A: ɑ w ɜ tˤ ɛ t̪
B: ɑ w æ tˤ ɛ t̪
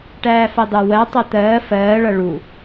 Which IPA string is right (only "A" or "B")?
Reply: A